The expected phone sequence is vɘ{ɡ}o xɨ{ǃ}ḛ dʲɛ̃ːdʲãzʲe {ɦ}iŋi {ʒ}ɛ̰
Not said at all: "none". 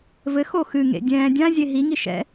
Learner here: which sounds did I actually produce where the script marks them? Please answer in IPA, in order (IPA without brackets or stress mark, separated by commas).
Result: x, ŋ, ɦ, ʃ